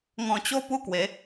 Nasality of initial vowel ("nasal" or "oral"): nasal